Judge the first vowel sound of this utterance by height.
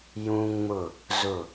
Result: high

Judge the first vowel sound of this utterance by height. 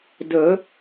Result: mid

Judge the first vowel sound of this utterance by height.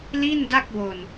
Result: high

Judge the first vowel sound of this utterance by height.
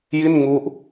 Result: high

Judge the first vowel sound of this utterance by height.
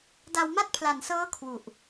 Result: low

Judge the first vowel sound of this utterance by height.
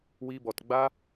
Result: high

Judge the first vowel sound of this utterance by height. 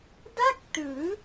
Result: low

